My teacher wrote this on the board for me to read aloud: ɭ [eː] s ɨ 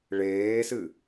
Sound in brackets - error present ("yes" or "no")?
no